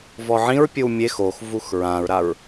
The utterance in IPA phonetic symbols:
v ɔ ʕ ĩ ɹ pʲ ɯ w mʲ e x o x v u x ɹ ã ɹ ɾ a ɹ

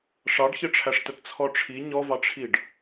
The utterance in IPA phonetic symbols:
ʂ ɑ ɖ ç ɘ ʈ͡ʂʰ æ ʂ t ə t t͡sʰ ɔ ʈ͡ʂʰ i ɲ ɔ v ɑ ʈ͡ʂʰ i ɖ

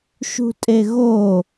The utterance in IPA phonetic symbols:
ʃ ṳ tʼ e ɣ o

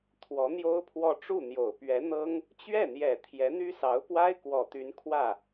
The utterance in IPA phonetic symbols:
t̪ʰ w ɔ˧˥ n̪ j o˥ ʊ̯ pʰ w ɔ˥˧ ʈ͡ʂ u˥˩ n̪ j o˨˩ ʊ̯ p ɥ ɛ˧˥ n̪ ɤ˥ ŋ | t͡ɕ ɥ ɛ˥˩ n̪ j ɛ˨˩ t̪ʰ j ɛ˧˥ n̪ y˥ s ɑ˧˥ ʊ̯ p w a˥ ɪ̯ k w ɔ˨˩ t̪ y˧˥ n kʰ w ä˥˩

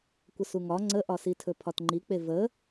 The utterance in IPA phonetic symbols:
kʷ ə s u ŋ ɒ ŋ͡ǀ ə ʔ ɒ s i tʰ ɵ pʰ ɒ t ŋ͡ǃ i k͡p e v ə

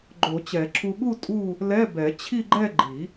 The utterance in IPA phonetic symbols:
ɡ͡ǃ o˨˩˦ t͡ɕ ɛ˨˩˦ ǁʰ u˧ ɠ u˥˧ tʼ u˥˧ | l ɛ˧˥˧ b ɛ˨˩˦ t͡ɕʰ i˥˧ ɡ͡ǃ ɛ˥˧ ɡ͡ǃ i˨˩˦

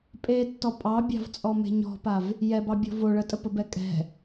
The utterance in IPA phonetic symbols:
pʼ e tː ɔ pʼ ɑ bʲ ɑ̤ v t͡sʼ ɔ m e̤ ɲ ɔ̤ p a v | j ɛ b ɑ bʲ ɔ̤ v o ɭ ə tʼ ə p ə b ɛ kʼ ɛ̤

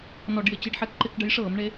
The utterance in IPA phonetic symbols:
n ɔ˧˩˧ ɖ j ɪ˧˩˧ t͡ɕ i˨˦ ɖ ħ ɛ˨˦ k ǃ ɪ˧˩˧ k ɖ ə˨˦ j ʂ ɤː˧˩˧ m ɳ e˨˦

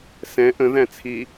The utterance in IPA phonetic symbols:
s ɛ̃ ʔ ə̃ ð æ̃ t͡sʰ i

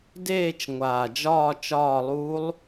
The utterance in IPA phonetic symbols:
d eː˦˨ t͡ʃ ŋʷ aː˨˩ d͡ʒ ɒː˦˨ t͡ʃ ɒː˦˨ lˠ uː˦˥ lˠ

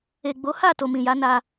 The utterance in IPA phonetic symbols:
e˨ ɡ͡b o˨˦ h a˦˨ t o˨ m ĩ˨ j a˨˦ n a˧

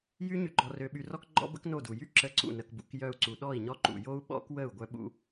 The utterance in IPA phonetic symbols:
j y˦ ɲ y˧ ɡ͡ǃ ɔ˧ r ø˧ ɓ y˧ r ɔ˦ k ɡ͡ǃ ɔ̰˦ b ə̰˦ k n o˦˨ d u˨ j y˦ ǁ ə˧ ǀ ṵ˦˨ n ə˧ k b ṵ˧ k j œ˧ u̯ ǀ u˨ ɗ ɔ˦˨ i̯ ɲ ɔ˦ ǃ ṵ˨ j o˦ u̯ ɓ ɔ̰˦ k w ə˦˨ u̯ ɡʷ œ˦ ɓ ṵ˦

